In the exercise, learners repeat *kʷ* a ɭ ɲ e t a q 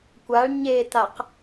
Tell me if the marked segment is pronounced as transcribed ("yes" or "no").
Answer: yes